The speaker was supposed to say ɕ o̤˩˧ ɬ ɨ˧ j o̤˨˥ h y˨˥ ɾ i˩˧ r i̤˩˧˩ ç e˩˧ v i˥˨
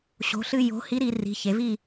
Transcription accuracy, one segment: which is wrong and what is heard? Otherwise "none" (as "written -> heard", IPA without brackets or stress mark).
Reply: y˨˥ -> i˨˥